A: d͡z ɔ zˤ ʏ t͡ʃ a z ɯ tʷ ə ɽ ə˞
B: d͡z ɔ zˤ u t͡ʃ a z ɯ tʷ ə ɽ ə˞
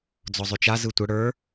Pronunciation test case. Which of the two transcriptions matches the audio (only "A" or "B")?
A